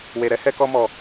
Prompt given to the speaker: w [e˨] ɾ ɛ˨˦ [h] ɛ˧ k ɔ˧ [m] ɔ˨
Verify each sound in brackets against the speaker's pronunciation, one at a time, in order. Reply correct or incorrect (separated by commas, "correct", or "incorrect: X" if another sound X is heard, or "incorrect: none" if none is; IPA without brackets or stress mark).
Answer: correct, correct, correct